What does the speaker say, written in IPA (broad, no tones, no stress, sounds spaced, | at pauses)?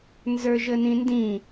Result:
n z ə˞ ʒ ə n ĩ n d ĩ